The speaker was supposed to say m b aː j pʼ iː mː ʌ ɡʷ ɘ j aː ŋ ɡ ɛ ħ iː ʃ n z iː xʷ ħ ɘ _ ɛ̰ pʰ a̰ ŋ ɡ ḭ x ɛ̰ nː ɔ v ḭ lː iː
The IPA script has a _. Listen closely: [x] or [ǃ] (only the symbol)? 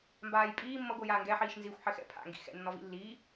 x